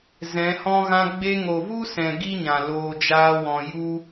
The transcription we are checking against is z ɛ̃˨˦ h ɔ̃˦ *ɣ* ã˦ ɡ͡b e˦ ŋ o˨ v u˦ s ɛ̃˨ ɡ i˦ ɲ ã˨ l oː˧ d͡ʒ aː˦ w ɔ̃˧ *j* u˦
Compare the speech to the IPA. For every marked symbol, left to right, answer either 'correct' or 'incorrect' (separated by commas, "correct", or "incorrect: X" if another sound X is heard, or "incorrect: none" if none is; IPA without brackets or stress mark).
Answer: correct, correct